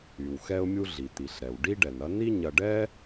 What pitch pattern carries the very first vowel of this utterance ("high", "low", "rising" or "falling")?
low